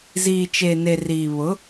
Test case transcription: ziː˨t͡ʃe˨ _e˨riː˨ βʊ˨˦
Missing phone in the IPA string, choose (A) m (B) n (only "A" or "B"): B